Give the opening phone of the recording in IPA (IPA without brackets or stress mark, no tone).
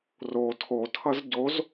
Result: r